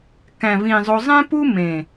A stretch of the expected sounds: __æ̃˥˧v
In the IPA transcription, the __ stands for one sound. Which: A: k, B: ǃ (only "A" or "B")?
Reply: A